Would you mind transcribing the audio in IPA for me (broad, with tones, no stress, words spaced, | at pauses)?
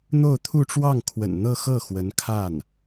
n̪o˥˧ʊ̯t̪ʰu˥˧ʈ͡ʂwɑ˥˩ŋkʰwə̰˨˩n n̪ɤ˥˧xɤ˥˩ xwə˧˥nkʰa˥˩n